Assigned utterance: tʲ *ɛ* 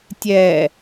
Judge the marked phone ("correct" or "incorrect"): correct